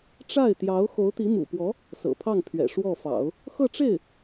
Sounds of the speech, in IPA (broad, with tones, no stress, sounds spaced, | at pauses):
ʈ͡ʂ a˥˩ ɪ̯ t̪ j ɑ˧˥ ʊ̯ x o˧˥ ʊ̯ t̪ i˧˥ m ṵ˨˩ p w ɔ˧˥ | s ɤ̰˨˩ pʰ ɑ˥˩ ŋ pʰ ɥ ɛ̰˨˩ ʂ w ɔ˥˩ f ɑ̰˨˩˦ ʊ̯ | x ɤ˥˧ ʈ͡ʂ e˥˩ ɪ̯